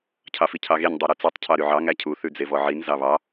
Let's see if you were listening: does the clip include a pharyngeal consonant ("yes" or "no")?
yes